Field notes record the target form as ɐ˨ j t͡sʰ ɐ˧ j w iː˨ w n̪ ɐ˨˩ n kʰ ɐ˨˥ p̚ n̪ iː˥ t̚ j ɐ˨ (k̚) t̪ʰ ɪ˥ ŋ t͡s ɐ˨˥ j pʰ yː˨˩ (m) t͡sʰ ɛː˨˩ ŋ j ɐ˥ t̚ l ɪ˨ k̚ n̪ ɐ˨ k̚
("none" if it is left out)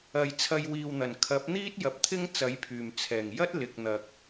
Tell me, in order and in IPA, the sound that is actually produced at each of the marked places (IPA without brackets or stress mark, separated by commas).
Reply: p̚, m